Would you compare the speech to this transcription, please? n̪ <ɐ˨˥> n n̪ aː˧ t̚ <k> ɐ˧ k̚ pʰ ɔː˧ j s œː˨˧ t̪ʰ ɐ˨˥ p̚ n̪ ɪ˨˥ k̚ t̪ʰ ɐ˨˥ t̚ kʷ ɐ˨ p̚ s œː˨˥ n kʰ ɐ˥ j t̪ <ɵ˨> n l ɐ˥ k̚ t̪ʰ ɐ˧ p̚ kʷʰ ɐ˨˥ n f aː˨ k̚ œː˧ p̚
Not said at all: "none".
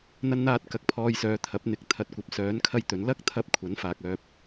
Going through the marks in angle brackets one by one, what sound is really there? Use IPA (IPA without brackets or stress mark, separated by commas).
ɐ˧, k, ɵ˨˥